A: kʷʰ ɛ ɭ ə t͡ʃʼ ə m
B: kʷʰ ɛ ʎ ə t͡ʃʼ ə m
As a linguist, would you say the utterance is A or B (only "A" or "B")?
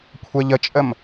B